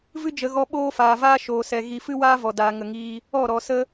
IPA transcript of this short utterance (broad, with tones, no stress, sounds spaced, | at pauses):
v ɨ˦ d͡ʒ ə˨ ɣ ɔ˧ ɓ oː˦ f aː˨ v aː˦ ʃ oː˨ s ɛ˨ ɣ i˨ f ɨ˦ w aː˦ v ɔ˨ d aː˨ ŋ ə˨ ŋ iː˧ | ɔ˦˨ ɾ ɔ˨ s ə˦